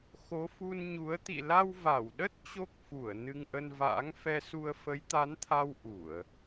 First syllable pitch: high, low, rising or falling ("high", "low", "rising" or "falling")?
rising